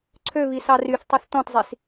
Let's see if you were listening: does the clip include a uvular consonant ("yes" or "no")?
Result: no